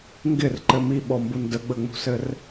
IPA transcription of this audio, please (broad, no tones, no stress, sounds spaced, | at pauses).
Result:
ŋ ɡ ɪ r ǃ ɘ m i ɓ ɔ m b u n d ə ɡ͡b ə ŋ͡m ṳ s ɘ r